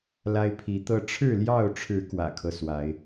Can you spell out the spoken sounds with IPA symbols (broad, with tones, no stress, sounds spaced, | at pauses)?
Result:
l a˦ ɪ̯ pʰ i˨˦ t̪ ɤ˦ ʈ͡ʂʰ ɻ̩˥˨ l j ɑ˥˨ ʊ̯ ʈ͡ʂʰ ɻ̩˨˦ k w ä̰˨˩ kʰ ɤ˦ s w a˨˦ ɪ̯